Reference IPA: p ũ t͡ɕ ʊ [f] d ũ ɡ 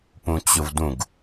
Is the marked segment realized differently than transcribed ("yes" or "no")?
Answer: yes